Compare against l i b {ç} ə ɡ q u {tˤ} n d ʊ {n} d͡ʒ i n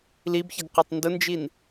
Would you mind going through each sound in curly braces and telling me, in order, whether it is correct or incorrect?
correct, correct, correct

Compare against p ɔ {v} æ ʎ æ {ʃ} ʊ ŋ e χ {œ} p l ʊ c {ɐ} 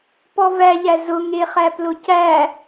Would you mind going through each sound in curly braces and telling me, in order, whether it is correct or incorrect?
correct, incorrect: z, incorrect: æ, incorrect: æ

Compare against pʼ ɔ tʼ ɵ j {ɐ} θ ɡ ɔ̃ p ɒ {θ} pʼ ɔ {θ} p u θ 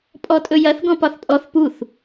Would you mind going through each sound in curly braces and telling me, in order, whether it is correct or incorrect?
correct, correct, correct

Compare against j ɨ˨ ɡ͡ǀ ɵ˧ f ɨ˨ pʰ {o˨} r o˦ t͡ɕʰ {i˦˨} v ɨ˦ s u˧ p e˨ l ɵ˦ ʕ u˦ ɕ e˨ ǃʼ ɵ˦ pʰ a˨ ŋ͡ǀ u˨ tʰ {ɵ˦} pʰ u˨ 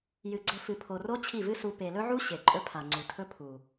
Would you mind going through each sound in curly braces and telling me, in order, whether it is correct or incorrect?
correct, correct, correct

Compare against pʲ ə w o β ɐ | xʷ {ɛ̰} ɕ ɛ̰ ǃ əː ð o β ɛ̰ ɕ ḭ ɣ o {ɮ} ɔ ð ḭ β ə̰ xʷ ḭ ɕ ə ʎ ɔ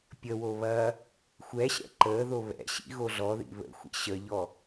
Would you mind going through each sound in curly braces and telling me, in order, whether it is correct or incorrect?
incorrect: ɛ, correct

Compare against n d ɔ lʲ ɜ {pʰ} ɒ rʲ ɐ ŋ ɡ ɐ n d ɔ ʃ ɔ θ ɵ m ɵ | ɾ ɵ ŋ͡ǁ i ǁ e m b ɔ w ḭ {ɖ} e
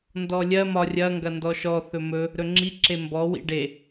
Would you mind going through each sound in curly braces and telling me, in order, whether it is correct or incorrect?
incorrect: m, correct

